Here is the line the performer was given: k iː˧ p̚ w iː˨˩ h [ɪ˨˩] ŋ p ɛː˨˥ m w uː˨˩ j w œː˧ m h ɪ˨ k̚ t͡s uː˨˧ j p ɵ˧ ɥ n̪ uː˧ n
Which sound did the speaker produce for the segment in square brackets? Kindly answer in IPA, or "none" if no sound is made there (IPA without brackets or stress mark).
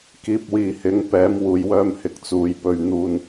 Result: ɪ˨˥